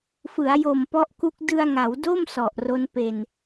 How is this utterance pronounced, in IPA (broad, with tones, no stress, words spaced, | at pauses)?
fɯ˩˦a̯jo˨˩m pɔ˦˥ʔku˦˥k̚ dɯ˧a̯ŋa˩˦wdo˥˩m sɔ˨˩ʔro˦˥npe˧n